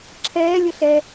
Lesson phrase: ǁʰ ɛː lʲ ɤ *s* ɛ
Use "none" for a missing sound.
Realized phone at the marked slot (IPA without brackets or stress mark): ɬ